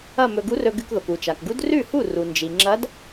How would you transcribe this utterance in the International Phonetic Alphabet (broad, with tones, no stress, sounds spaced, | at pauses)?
ɐ˥˧ m ɵ˧ ɡ u˧˥ r ɵ˧ ɡ ʉ˧ k ð o˩ k u˩ t͡ʃ a˩ k ɡ u˧˥ d r ʉ˥˩ h u˥˩ r u˩ n d͡ʒ i˩ ŋ͡ǁ ɐ˧˥ d